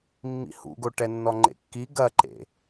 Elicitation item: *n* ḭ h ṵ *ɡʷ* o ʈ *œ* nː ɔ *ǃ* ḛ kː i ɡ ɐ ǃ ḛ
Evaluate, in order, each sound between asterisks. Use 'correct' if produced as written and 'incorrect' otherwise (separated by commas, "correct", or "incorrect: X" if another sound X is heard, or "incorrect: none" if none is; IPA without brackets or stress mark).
incorrect: mː, incorrect: ɡ, incorrect: ɛ, incorrect: ŋ͡ǃ